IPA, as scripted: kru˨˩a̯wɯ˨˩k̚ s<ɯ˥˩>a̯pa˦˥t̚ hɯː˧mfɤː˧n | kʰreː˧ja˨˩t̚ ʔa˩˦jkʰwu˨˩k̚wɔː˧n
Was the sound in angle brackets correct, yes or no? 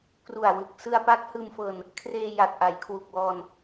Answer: no